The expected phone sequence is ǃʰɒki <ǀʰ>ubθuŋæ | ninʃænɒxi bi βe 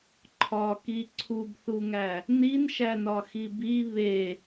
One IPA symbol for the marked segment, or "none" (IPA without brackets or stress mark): ǀʰ